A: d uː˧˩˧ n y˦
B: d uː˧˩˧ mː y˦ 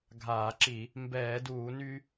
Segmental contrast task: A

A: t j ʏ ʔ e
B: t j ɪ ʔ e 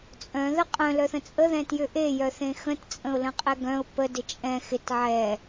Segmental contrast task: A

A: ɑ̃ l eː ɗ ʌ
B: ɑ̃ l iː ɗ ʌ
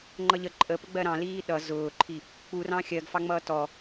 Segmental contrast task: B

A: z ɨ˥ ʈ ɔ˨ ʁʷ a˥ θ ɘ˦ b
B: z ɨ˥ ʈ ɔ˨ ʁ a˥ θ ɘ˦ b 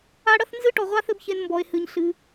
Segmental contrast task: A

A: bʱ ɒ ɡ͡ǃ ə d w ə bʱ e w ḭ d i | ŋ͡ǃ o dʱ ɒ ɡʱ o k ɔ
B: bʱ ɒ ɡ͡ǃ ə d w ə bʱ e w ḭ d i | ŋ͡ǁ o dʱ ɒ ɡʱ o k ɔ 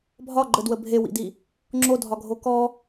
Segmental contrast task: B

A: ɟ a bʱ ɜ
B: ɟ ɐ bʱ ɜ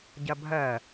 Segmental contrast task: B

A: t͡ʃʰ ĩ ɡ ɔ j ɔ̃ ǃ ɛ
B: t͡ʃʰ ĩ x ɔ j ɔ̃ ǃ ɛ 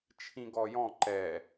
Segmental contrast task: A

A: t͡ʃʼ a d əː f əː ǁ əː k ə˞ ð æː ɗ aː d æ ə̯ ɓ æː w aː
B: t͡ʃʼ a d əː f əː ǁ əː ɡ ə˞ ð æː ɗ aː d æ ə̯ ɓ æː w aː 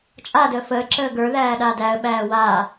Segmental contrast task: B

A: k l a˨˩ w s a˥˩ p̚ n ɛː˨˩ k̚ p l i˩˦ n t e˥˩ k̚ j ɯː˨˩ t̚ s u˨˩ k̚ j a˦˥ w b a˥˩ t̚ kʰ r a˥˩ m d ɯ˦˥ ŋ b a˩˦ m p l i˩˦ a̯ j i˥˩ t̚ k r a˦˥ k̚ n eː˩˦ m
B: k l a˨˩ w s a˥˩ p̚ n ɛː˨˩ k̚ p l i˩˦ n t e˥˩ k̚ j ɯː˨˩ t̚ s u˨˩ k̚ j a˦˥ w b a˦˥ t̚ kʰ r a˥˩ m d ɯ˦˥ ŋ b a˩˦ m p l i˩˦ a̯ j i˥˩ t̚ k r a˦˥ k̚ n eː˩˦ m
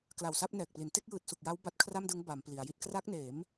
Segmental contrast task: B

